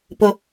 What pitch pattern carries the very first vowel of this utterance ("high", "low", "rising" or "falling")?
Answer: high